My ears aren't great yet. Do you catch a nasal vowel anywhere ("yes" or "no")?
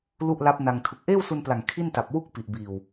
no